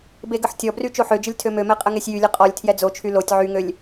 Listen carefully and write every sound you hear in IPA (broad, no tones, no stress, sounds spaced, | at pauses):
b e ɡ ə ħ tʲ ɔ b r y t͡ʃ o ħ ø d͡ʒ ə lʲ tʰ ø m ø m ɛ qʼ ə ŋ e sʲ j y lʲ ə qʼ ɔ lʲ tʰ j ɛ d͡z o t͡ʃʰ y l o tʲ ʕ y ŋ ø lʲ